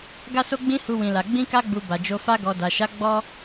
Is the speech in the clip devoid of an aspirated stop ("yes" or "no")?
yes